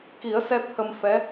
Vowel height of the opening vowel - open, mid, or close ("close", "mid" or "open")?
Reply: close